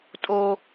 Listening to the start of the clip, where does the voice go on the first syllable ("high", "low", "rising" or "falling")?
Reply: high